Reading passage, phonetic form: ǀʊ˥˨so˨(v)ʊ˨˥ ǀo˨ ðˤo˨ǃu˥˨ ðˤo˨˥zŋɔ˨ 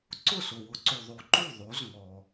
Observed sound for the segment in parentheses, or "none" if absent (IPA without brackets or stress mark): w